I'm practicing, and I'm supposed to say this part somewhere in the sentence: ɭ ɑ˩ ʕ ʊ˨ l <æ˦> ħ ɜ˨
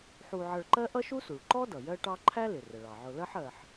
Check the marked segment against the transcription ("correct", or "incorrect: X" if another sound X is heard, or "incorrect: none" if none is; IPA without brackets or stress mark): incorrect: ɜ˦